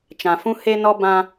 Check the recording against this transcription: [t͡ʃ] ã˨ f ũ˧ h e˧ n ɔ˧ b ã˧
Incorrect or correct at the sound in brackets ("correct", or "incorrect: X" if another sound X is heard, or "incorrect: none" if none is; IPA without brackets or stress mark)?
correct